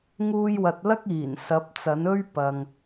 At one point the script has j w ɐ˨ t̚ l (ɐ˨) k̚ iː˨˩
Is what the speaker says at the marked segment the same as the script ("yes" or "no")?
no